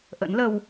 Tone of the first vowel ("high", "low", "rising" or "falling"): rising